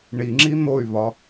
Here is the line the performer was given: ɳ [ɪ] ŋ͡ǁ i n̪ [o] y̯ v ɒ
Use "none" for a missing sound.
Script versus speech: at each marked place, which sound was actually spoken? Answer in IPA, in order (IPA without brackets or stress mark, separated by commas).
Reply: i, o